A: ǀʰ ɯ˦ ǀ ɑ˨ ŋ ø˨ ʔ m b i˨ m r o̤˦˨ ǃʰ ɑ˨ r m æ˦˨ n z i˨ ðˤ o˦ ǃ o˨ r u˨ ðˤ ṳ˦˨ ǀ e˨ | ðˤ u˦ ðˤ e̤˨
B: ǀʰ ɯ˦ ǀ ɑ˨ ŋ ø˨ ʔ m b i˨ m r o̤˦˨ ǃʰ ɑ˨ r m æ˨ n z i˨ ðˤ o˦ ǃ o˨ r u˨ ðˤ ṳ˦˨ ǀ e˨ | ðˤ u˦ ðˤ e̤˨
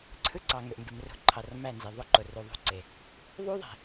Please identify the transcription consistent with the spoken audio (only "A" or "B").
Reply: A